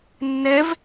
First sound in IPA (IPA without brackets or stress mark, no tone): nː